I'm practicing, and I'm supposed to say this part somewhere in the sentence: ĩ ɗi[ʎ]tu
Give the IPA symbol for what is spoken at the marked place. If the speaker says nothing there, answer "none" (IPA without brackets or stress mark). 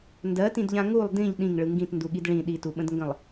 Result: none